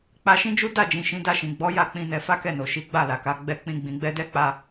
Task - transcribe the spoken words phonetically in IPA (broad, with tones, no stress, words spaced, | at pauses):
k͡pa˧ʃĩ˦d͡ʒu˦ da˦˨d͡ʒĩ˨ ʃĩ˨˦da˦˨ʃĩ˨ ɡ͡bɔ˨˦ ja˦k͡pĩ˧ nɛ˧fa˦kɛ˦˨no˨ ʃi˨˦ɡ͡ba˦˨la˨ka˨˦ ɡ͡bɛ˧k͡pĩ˧ ɡ͡bĩ˨ɡ͡bɛ˧dɛ˦k͡pa˧